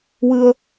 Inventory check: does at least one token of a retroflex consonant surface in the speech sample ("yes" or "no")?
no